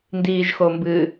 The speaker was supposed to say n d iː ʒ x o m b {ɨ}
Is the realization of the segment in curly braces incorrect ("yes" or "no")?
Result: no